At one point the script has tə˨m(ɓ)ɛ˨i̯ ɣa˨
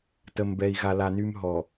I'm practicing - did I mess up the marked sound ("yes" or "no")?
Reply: yes